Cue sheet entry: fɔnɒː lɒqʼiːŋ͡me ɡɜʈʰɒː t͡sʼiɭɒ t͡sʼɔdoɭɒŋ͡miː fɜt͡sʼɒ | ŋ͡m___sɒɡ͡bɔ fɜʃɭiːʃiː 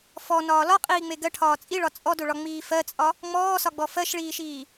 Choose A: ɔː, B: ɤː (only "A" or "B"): A